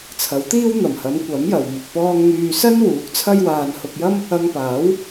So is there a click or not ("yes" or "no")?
no